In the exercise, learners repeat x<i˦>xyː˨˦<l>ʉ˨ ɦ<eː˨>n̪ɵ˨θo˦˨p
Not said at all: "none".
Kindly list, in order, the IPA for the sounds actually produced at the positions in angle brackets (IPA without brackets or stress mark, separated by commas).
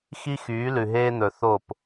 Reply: i˦, l, eː˦